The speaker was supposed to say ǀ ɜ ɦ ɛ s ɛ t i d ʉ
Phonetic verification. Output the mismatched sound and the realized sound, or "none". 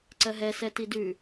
none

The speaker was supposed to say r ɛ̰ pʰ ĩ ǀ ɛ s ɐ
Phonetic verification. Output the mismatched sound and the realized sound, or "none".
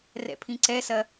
none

